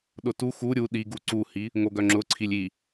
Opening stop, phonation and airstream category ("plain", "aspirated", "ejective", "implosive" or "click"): implosive